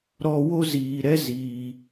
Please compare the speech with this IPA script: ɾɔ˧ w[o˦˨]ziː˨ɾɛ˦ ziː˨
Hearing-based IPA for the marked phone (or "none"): o˦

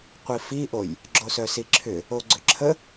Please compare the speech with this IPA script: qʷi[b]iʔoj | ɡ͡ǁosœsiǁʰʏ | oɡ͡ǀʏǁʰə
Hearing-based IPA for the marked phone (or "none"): f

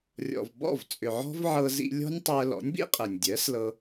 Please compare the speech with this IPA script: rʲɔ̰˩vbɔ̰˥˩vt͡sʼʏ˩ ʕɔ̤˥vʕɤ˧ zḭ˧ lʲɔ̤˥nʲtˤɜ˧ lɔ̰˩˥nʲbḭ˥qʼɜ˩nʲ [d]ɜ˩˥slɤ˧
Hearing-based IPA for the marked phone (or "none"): dʲ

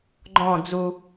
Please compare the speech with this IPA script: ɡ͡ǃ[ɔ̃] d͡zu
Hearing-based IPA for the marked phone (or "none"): ɔ̃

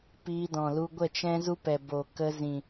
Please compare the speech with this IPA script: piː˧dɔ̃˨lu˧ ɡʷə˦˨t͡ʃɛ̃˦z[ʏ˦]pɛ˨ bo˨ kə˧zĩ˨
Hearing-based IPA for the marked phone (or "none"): u˦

